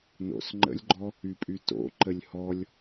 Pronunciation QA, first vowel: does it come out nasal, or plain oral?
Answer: oral